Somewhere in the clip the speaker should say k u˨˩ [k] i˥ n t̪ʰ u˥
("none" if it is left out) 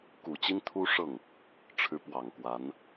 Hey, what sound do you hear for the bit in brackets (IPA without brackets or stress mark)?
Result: t͡ɕ